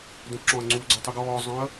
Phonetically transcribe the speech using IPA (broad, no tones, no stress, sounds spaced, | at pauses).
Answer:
d œ̃ p ǁ ɔ̃ ɐ̯ ŋ͡ǀ u ɡ͡ǀ ɔ tˤ y ɡ ɔː zˤ œ̃ ɐ̯